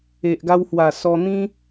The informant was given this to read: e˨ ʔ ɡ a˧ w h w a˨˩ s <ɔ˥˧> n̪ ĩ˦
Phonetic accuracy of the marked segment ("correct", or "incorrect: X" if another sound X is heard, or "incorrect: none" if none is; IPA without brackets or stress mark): incorrect: ɔ˧